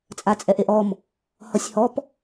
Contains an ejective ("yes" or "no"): yes